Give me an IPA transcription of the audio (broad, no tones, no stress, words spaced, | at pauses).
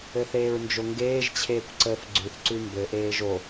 ɘθeːɹnd͡ʒoŋɡeːʒ t͡ɕʰeːkʷǀəːfɡ͡ǀʉθ ǀʉmbɘ ʔeːʒo